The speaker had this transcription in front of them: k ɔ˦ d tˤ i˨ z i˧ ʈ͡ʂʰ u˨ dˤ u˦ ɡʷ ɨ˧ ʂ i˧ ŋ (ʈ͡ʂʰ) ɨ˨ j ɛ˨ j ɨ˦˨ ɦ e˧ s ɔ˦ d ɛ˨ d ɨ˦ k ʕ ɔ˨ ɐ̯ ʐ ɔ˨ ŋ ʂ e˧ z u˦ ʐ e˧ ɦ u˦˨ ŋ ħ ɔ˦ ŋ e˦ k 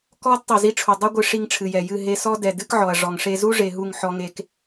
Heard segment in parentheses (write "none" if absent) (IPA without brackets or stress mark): ʈ͡ʂʰ